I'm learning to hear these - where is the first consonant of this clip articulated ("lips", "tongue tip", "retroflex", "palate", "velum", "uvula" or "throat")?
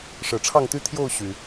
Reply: retroflex